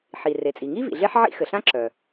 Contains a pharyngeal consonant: yes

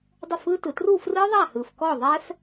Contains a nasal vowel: no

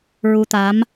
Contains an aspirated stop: no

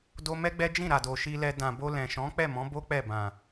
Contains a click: no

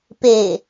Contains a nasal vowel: no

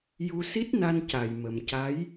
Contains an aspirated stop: no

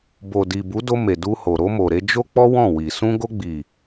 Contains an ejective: no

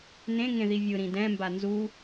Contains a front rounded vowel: no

